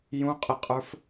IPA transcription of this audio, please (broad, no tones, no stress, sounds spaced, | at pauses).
j ũ qʼ ɪ qʼ ə˞ f